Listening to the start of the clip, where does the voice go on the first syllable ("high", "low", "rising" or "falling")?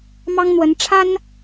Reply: high